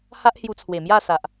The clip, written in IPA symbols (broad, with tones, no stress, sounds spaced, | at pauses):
h a˦ ʔ h j u˧ t͡sʰ w e˨˩ m j a˥˧ s a˨ ʔ